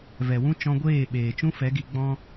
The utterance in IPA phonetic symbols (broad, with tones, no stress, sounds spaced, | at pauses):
v ɛ˨ w ũ˦ t͡ʃ ɔ̃˧ ɡʷ eː˦˨ ɓ eː˨ t͡ʃ ũ˦ f ɛ˨˦ ɡ i˧ ɡ͡b ɔ̃˦